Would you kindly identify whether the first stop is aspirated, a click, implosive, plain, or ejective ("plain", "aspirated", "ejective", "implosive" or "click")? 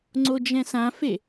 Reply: click